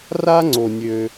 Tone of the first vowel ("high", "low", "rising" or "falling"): high